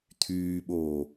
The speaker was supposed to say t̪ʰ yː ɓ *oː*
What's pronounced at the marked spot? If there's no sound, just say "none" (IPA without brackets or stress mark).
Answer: oː